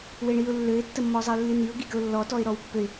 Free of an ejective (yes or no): yes